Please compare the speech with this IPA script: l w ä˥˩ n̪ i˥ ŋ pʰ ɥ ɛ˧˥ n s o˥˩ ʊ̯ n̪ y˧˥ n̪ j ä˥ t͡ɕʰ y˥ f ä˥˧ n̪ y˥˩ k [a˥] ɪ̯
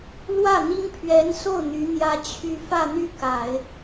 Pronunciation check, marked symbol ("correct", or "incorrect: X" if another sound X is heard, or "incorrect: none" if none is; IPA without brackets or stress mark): incorrect: a˨˩˦